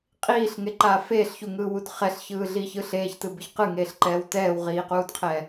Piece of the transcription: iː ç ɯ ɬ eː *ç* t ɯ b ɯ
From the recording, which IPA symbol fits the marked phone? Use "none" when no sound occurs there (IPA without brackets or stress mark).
ç